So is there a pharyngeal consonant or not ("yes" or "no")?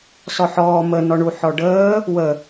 yes